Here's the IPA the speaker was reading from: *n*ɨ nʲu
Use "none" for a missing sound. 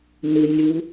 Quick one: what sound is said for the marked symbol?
n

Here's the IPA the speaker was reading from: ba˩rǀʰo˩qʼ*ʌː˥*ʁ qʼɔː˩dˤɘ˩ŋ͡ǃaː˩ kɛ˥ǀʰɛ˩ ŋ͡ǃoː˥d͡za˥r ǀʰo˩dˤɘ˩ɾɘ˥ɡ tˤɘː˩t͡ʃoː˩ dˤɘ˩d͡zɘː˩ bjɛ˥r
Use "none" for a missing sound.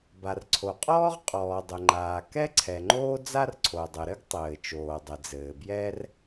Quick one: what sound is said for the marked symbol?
ɔː˥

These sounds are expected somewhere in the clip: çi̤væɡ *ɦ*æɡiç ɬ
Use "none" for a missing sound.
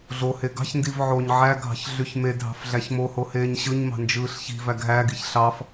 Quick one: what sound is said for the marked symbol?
ɦ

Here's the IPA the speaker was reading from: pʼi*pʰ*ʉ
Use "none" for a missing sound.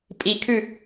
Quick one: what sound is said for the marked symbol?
kʰ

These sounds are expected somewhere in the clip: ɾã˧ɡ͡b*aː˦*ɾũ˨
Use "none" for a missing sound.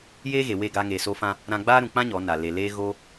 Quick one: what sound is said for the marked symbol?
aː˦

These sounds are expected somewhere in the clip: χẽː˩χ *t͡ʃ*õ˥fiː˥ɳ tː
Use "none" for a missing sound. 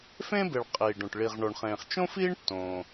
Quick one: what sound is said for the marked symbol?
t͡ʃ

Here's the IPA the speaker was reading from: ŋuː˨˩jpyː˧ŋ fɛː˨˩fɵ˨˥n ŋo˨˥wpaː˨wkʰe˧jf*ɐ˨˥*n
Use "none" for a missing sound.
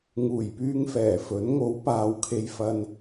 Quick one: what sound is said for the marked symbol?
ɐ˧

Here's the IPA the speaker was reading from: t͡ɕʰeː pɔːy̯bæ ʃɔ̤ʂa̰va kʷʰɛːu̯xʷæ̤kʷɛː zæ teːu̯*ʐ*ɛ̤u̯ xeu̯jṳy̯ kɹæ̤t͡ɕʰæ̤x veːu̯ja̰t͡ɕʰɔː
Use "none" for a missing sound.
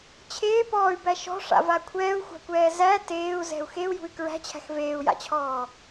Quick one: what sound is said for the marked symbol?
z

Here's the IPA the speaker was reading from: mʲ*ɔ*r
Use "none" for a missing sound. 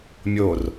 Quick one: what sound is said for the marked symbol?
o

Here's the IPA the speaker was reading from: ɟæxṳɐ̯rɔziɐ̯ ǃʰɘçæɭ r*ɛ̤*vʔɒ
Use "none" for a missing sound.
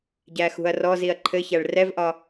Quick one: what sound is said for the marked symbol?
ɛ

